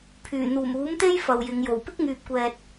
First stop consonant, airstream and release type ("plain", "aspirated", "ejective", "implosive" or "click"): aspirated